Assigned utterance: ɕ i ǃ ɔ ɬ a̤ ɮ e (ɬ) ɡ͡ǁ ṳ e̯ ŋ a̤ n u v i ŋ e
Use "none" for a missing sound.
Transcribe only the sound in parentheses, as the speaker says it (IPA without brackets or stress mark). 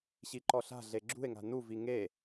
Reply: none